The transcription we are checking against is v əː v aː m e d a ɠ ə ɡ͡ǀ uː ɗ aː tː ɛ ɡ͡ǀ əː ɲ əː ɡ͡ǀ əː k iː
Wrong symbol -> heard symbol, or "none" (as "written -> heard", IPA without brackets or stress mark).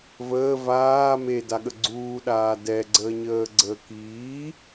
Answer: tː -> d